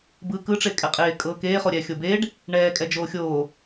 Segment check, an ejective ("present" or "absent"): present